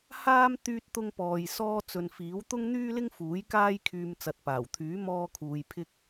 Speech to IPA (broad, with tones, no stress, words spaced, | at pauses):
haː˥m t̪yː˥t̚t̪ʊ˥ŋ pɔː˧j sɔː˥ t͡sɵ˨nfiː˨˥w t̪ʊ˥ŋn̪yː˥lɪ˥ŋfuː˨˥j kaː˥j kʰyː˧m t͡sɐ˨t̚paː˨˩wt̪ʰyː˨˥ mɔː˥kʰuː˧jpʰɪ˥k̚